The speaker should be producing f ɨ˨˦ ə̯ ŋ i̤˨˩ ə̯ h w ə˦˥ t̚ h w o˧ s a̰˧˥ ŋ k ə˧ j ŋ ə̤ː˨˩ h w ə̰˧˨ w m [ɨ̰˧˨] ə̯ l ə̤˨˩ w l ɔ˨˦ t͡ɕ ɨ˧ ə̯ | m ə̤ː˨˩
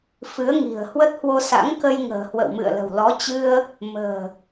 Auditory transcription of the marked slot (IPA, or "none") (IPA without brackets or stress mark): ɨ̰˧˨